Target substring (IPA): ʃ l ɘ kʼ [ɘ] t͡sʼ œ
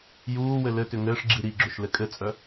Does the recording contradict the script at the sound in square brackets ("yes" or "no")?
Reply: no